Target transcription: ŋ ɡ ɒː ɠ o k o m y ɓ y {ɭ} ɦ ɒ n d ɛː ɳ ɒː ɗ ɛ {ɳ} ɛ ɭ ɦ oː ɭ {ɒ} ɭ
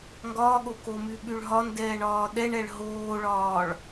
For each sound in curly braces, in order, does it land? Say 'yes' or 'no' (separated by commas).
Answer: yes, yes, no